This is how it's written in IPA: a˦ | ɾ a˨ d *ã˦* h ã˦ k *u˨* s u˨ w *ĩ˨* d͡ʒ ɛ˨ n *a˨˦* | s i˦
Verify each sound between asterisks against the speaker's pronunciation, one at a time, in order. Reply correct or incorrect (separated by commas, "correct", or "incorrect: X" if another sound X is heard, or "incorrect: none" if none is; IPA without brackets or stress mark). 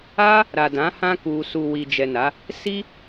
incorrect: ã˨˦, incorrect: u˧, incorrect: i˨, correct